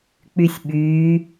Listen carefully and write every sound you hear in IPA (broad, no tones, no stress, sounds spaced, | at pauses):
k͡p y sʲ ɓ yː